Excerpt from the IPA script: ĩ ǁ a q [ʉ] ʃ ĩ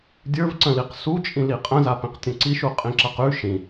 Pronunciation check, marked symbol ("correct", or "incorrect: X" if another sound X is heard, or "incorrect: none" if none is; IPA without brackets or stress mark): correct